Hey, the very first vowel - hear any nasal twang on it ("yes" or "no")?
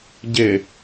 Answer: no